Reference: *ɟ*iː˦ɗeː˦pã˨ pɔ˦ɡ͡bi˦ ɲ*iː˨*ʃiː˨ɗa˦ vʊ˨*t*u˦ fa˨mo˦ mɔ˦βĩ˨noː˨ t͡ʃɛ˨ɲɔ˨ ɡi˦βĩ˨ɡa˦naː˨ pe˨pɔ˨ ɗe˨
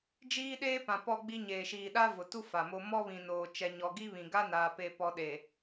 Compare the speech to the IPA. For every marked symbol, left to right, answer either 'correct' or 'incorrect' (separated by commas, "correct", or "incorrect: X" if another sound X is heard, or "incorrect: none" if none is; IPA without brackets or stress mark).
incorrect: d͡ʒ, incorrect: eː˨, correct